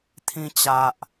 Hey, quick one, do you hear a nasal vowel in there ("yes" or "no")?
yes